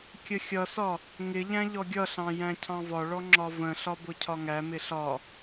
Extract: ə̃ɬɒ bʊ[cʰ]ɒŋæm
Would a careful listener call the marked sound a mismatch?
no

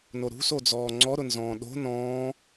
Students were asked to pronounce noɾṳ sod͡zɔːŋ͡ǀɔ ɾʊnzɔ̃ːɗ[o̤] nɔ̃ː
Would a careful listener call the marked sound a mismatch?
no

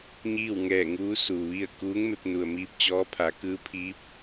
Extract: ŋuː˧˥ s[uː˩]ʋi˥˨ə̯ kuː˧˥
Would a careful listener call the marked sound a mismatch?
no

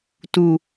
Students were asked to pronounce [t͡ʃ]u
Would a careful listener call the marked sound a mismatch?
yes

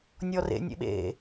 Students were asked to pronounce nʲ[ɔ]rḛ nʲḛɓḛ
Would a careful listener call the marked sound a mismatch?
no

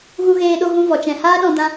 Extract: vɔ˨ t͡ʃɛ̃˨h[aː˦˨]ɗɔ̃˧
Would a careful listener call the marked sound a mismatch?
yes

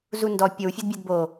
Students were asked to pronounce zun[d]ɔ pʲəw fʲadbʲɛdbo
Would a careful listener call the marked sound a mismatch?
no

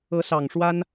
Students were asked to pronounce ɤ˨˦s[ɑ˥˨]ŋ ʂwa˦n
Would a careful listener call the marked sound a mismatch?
yes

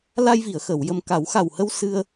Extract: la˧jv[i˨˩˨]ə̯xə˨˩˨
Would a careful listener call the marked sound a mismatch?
no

